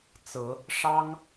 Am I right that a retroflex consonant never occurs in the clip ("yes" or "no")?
no